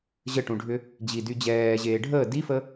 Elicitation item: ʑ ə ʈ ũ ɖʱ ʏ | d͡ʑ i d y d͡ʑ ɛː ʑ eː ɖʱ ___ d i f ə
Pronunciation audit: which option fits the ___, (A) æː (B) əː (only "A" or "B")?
B